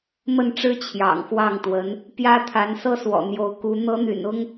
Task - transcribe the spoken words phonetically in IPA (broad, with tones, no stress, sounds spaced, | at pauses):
m ə˥˩ n ʈ͡ʂ ɻ̩˥ t͡ɕʰ j ɑ̰˨˩ ŋ x w ɑ˥˩ ŋ t̪ w ə˧˥ n | p j ä˥ t̪ʰ a˧˥ n s ɤ˥ s w ɔ̰˨˩ n̪ j o˧˥ ʊ̯ k u˧˥ n̪ ɤ˧˥ n̪ y̰˨˩ n ʊ˥ ŋ